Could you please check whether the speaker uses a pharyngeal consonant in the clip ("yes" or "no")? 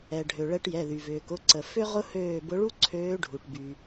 no